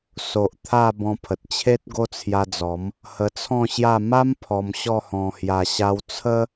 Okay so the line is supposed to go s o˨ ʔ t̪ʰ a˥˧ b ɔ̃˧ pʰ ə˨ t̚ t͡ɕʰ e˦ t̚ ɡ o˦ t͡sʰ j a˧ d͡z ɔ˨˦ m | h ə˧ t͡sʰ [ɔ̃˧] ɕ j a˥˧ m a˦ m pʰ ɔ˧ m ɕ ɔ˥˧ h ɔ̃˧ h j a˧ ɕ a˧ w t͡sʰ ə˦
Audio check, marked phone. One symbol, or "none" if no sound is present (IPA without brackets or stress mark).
ɔ̃˥˧